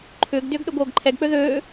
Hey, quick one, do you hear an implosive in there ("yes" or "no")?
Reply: yes